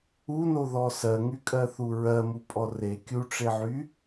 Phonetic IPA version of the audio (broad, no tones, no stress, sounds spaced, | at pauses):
u n o ð ɔ s ɜ ŋ y kʼ ɜ θ u ɹ ɜ m u pʼ ɔ r e kʲ u ʈ͡ʂ e ʕ y